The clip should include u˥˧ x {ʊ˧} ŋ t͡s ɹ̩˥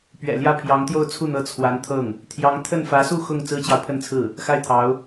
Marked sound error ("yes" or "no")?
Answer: yes